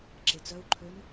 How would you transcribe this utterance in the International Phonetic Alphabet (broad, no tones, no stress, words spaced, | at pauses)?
ǁet͡sœu̯ǃʰøn